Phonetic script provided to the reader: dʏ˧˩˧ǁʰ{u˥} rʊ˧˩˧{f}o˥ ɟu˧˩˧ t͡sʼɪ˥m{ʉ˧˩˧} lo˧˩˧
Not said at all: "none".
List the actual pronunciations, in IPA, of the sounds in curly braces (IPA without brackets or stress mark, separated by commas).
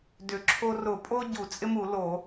o˥, pʼ, u˧˩˧